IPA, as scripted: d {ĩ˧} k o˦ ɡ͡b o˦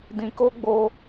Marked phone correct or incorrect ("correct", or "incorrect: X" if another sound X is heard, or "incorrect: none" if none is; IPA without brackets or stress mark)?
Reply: correct